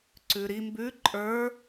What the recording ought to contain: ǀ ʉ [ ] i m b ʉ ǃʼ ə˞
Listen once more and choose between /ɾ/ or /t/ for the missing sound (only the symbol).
ɾ